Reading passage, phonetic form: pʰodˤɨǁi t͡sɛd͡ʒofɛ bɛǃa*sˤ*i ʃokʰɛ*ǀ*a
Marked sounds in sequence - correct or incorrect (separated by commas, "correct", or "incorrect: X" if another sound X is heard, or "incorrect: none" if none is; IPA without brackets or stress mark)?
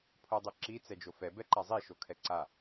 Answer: incorrect: zˤ, correct